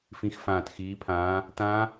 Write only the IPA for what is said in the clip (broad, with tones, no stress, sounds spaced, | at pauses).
f ĩ˨˦ x f ãː˨˩ t x iː˨˦ pʰ ãː˨˦ | t ã˦˥